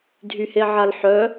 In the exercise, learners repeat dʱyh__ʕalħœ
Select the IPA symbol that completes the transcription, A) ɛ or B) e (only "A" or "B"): B